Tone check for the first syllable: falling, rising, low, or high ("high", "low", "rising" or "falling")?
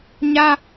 high